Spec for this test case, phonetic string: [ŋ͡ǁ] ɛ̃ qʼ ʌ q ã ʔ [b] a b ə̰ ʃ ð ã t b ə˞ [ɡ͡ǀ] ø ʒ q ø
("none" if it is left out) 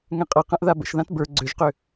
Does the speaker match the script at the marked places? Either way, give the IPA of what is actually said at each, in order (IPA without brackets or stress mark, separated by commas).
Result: ŋ, ð, ɡ͡ǀ